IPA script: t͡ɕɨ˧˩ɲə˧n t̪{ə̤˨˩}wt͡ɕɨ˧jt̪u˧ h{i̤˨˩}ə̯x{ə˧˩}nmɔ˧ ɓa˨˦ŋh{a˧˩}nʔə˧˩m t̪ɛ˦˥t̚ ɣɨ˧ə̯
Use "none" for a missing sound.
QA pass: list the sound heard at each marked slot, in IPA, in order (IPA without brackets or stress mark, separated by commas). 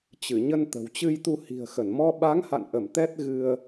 ə̤˨˩, i̤˨˩, ə˧˩, a̰˧˨